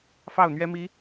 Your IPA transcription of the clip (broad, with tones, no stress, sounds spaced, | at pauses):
f ɑ˥˩ ʊ̯ n̪ ɥ ɛ˥ m i˧˥